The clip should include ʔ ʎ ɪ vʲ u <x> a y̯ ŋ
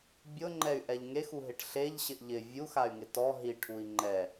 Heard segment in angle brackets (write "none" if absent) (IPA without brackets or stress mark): x